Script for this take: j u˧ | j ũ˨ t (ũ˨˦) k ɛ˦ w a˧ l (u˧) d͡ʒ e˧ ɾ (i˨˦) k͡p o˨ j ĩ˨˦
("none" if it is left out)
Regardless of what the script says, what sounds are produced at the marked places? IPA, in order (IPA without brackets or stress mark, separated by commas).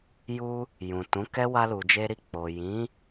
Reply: ũ˨˦, u˨, i˧